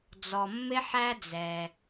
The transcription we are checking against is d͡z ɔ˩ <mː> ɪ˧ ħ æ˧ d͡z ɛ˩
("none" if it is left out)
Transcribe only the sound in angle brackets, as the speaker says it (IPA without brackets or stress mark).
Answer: mː